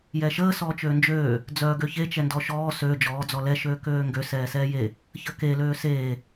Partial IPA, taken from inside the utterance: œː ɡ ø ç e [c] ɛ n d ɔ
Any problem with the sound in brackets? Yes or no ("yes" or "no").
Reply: yes